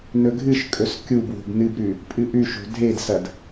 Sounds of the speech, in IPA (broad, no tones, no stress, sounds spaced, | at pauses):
n ɵ ɡʱ ɨ ʃ kʼ ɵ s kʲ u b w o̤ b n ɨ b ɾ ʉ | pʼ ɨ ʔ ʉ ʃ o̤ dʱ e d s ɐ d